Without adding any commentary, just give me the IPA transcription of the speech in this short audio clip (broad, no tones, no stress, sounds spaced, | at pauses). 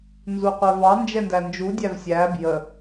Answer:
n z u qʷ ɛ v ɑ n d͡ʒ ɛ n d æ n d͡ʒ u dʲ æ v sʲ æ b j ə